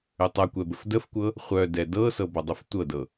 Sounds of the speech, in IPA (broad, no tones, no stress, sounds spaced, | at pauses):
ʏ tˤ ʌ kʷ ɛ b ə f d ə f kʷ ɤ | χʷ œ d ɛ d ɤ s ɤ b ɔ dˤ u f tʷ ɤ d ɤ